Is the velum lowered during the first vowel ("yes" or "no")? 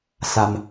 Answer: no